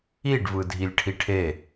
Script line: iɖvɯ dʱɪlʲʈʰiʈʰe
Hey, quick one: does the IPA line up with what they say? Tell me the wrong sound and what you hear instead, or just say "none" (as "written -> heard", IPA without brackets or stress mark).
ɪ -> i